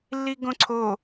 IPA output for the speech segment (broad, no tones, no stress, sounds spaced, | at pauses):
lː i ɡ õ ǀʰ o